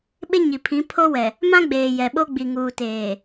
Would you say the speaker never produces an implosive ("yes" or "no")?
no